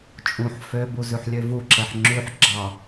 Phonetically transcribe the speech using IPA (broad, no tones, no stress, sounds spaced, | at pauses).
t͡ʃʼ ũ ħ f ø b u z ʉ ħ lʲ ø v u ǁ ɛ ħ ŋ͡ǁ ʉ ħ ɡ͡ǁ ɑ